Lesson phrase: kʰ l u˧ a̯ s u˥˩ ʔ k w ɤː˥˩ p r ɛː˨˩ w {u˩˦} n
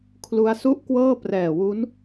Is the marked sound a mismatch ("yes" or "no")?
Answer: yes